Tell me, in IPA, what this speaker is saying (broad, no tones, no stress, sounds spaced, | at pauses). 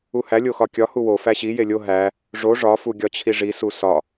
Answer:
u h æ lʲ o x ɒ kʲ ɒ h u w o f æ ɕ i j e lʲ o ɦ æ | ʐ o ʐ ɒ f u ɡʲ ɒ t͡ɕʰ i ʐ i s u s ɒ